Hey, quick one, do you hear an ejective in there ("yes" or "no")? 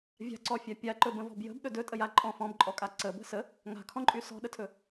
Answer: yes